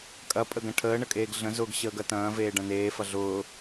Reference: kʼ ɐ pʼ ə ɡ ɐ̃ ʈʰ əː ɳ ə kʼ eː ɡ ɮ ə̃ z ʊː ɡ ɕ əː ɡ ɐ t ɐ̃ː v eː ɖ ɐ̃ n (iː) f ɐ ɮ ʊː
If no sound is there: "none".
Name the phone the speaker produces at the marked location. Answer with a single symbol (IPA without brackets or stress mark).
eː